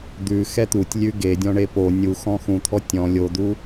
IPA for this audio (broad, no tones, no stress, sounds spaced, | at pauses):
d̪ ʉ x ɛ t̪ u tʲ lʲ ʉ ɡ e dʲ ɔ̃ ɳ e p o nʲ u x ɔ̃ x ũ t̪ʰ ɔ tʲ ɔ̃ lʲ o d̪ u